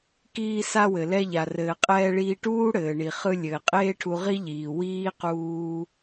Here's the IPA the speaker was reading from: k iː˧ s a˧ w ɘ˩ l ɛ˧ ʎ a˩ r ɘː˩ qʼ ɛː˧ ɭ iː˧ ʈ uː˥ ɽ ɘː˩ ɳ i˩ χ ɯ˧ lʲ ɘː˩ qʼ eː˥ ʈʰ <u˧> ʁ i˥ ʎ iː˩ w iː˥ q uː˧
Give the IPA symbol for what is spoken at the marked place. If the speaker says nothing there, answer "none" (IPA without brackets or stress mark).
u˧